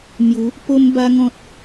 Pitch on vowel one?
rising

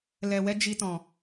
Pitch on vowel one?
low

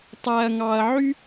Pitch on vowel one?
low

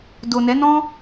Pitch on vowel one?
low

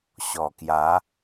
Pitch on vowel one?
low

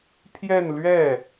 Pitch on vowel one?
falling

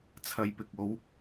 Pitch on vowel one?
low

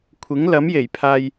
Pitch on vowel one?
rising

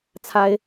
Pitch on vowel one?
high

